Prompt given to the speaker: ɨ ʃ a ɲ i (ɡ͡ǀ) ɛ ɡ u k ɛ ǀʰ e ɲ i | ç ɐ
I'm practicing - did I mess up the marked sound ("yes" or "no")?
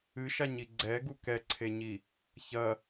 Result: no